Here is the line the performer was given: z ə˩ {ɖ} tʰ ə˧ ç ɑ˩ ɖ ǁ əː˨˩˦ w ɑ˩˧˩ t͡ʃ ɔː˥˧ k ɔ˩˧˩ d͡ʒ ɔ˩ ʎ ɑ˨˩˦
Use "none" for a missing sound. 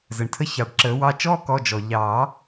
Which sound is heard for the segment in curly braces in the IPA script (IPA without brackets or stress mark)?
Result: ɳ